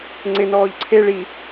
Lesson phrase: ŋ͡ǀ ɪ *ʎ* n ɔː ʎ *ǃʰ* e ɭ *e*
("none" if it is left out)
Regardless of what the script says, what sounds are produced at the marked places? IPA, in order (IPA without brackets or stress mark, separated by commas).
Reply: none, ǀʰ, i